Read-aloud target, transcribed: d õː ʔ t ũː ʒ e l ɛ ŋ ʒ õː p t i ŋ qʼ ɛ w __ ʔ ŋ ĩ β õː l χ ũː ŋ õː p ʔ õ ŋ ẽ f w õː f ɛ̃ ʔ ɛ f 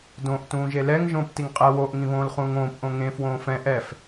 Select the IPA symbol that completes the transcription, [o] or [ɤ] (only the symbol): o